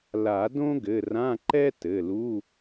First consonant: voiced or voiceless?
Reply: voiced